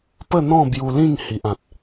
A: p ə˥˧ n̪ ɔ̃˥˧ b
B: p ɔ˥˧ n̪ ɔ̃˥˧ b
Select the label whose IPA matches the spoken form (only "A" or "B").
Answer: A